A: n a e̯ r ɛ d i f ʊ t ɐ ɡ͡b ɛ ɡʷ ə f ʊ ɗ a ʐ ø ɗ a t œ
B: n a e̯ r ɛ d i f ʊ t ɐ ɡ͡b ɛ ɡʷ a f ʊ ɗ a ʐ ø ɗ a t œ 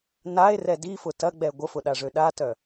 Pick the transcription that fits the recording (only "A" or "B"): A